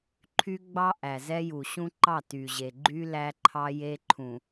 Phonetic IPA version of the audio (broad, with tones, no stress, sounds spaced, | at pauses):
ǃʰ y˦ ɡ͡b ɑ˦ ʔ æ˨ z ɛ˦ j u˨ ɕ ũ˦ ǃ ɑ˦˨ t y˨ ʑ e˨ ɡ͡ǃ y˦ l æ˦ ǃʰ ɑ˦ j e˦ ǃʰ ũ˨